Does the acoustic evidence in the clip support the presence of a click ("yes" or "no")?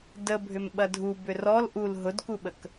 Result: no